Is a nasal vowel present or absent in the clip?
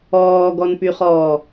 absent